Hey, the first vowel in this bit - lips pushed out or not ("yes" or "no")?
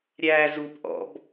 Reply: no